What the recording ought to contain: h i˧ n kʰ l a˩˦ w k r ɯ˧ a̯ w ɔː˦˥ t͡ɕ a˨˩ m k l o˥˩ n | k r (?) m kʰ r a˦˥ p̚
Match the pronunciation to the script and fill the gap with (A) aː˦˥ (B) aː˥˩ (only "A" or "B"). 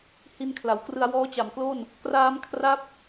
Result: A